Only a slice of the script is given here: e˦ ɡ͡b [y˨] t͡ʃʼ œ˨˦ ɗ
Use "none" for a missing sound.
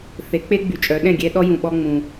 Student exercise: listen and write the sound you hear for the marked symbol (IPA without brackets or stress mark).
y˨